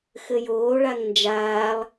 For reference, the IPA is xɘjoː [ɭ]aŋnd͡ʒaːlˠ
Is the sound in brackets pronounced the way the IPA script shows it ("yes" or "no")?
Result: yes